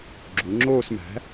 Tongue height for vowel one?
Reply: high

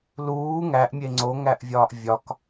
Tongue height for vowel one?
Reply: high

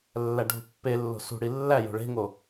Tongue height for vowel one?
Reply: low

